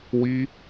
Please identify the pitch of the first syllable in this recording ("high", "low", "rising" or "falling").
high